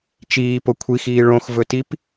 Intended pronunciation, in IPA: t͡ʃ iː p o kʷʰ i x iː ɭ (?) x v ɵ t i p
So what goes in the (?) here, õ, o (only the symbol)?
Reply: õ